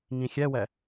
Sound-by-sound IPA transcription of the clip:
ŋĩxʲɛwɛ

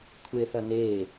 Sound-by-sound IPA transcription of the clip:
kʷʰeθɐne

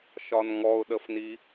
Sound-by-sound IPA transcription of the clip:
ʃɒnŋɔʊ̯ɗəfni

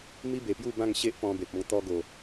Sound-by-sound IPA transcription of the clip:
mi˦be˨˩pju˥˧ bã˥˧ŋɕe˦ʔ pɔ̃˧be˨p̚ɔ̃˧ŋ t̪ɔ˧ɡo˨˩

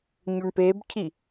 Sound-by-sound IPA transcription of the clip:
ɲɵɳpebcʰi

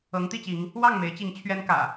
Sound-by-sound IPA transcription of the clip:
ɤ˨˦ŋt̪i˥˨t͡ɕi˨˦ŋ | wɑ˥˨ŋme˨˦ɪ̯t͡ɕi˨˦ŋ t͡ɕʰɥɛ˦nkä̰˨˩

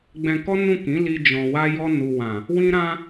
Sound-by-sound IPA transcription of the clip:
ɡ͡bɛ̃˧kɔ˦ nũ˦˨kĩ˨˦li˧ d͡ʒɔ̃˨wa˧jɔ˧ nu˨ wã˨ | wĩ˦ ɾã˦

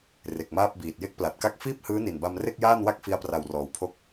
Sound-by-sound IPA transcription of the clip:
re˨˩k̚maː˥˩p̚biː˨˩t̚ je˥˩k̚pla˨˩t̚ka˥˩k̚ fiː˥˩p̚hɯː˦˥ni˨˩nba˧m re˥˩k̚jaː˥˩nwa˥˩k̚ fi˧a̯pra˨˩wrɔː˩˦wpʰo˦˥k̚

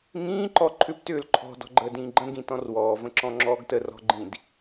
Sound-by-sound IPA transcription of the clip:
ŋĩː ǃɔǃʰʏp tʏːlǃʰɔ̤ dɔ̤ɡ͡ǃəːdĩːɡ͡ǃə̃ ɡĩtɔ̃rwɔː və̃ǁɔ̃ŋ͡ǁɔːɡtə rɔ̤ɡ͡ǃĩd

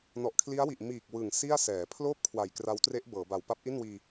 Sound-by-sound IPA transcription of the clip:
nɔ˨˩ʔkʰli˦˥a̯wi˨˩ʔ miː˨˩k̚ wɯ˨˩ŋ si˥˩a̯ sɛː˩˦ pʰloː˥˩p̚ kʰwa˨˩jkra˦˥wtre˦˥ʔ bɤː˩˦ba˨˩w pa˥˩p̚ʔi˥˩nwiː˧

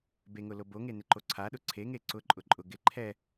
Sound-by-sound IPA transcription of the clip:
beŋʊlo boŋenɪǃo ǀʰaɗʊ ǀʰeŋe ǀʊǃʼʊ ǃʼʊ ɡɪ ǃʰɛ

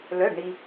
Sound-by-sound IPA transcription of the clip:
lœ˩˧˩ɖɳi˩

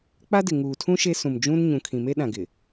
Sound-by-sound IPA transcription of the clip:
k͡pa˦dɪ˨ŋuː˨tʰũ˦ ʃe˦sũ˨m d͡ʒũ˦n ɲũ˨kʰĩ˨me˦ ɗã˨ɡɪ˨

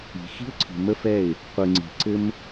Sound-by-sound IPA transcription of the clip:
i̤˨xi̤˦ʊ̯ǀʰi̤˨ mə˦fɛ˦˨ɪ̯ | qʷɯ˨ŋ͡ǀi̤˨ ǀɘ˦m

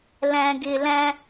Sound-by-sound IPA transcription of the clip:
læ̃˨ɡɪ˨læ̃˦

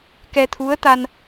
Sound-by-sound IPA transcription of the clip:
kɛ˧t̪ʰu˧˥ə̯t̪a˧n

